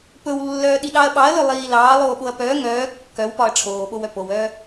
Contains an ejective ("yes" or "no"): no